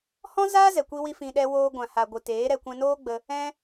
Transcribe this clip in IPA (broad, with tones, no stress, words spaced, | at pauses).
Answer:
hɔ̃˦zaː˦ zɛ˨ kʷi˧wi˧ fĩ˧ɗɛ˦ woː˧ɡʷã˨ ha˨ɡʷɨ˨ teː˨˦ɾɛ˧ kʷɛ̃˧noː˦ɡ͡bə˧ | ɛ̃˧